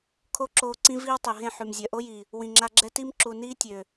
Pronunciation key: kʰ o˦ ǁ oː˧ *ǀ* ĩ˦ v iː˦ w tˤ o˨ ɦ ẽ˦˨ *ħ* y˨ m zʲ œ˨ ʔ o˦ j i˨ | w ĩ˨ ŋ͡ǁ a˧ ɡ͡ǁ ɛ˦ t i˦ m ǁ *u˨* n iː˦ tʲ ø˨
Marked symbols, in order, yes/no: yes, yes, yes

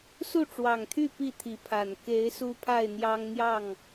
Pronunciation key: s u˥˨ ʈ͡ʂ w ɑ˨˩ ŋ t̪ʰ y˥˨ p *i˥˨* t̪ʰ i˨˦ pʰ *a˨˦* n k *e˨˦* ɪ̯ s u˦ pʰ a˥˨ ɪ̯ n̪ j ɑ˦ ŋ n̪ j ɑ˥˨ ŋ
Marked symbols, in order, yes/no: yes, no, yes

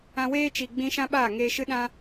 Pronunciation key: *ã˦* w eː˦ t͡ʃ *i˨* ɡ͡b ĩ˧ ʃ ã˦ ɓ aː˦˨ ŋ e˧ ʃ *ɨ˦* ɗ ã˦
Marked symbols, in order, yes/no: no, yes, yes

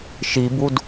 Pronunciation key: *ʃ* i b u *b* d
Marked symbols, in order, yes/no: yes, no

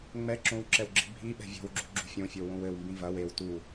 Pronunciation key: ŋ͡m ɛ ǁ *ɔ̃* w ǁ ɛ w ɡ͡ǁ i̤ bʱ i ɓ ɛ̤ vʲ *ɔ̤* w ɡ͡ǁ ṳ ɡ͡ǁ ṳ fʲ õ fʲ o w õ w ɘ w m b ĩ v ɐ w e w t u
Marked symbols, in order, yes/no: no, yes

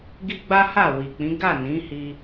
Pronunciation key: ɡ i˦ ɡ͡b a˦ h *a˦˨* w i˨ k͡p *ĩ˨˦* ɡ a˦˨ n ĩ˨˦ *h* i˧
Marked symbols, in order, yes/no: yes, yes, yes

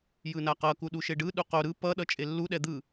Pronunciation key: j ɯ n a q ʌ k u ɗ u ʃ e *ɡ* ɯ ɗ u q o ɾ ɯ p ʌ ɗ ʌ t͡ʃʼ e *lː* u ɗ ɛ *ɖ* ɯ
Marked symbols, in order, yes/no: no, yes, no

